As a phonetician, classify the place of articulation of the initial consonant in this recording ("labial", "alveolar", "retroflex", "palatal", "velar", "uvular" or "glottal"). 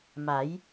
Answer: labial